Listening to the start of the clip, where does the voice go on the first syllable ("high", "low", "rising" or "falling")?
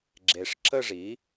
low